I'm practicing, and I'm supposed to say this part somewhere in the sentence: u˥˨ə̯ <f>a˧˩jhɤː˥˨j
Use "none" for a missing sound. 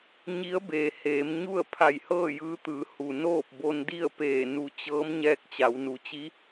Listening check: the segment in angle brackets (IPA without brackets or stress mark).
pʰ